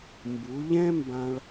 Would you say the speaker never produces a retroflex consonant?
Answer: no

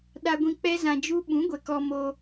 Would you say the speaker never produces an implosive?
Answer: no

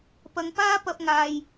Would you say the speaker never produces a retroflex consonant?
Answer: yes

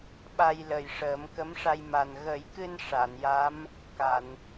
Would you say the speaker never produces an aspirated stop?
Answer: yes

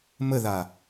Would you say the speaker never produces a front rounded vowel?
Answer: yes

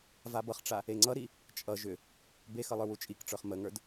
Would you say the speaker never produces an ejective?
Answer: no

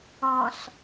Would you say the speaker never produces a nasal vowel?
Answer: no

